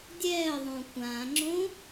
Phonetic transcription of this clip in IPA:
dʲ ɛː ə̯ ðˤ õ kʷ ã ŋ͡ǁ õ

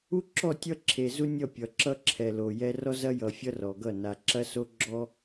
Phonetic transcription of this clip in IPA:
u˦ ǁ ɔ˦˨ tʲ ʌ˦ ǁʰ e˨ z u˦ nʲ ʌ˦˨ pʲ ʌ˨ ǁ ʌ˦ ǁʰ ɛ˨ l o˨ j ɛ˦ r ɔ˦ z ɐ˦ j ʌ˨ fʲ ʌ˦ r ɔ˨ ɡ ʌ˦˨ n a˨ ǁ ɐ˦ s o˦ ɡ͡ǁ ɔ˦

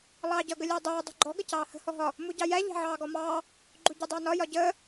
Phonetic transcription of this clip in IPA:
lˠ ɑː ɟ ʌ ɡ ə lʲ əː dˤ uː dˤ ṳ ɡ͡ǃ ɔ ɡ ə c ɑː h ə̤ h ɔ ɦ ɒ | m u ɟ ɑ j æ ʎ æ̤ ʕ ɑː ɡ ɔ m ɑː | ɡ͡ǃ u ɟ ʌ dˤ ɑ n ɒ j ɒ ɟ əː

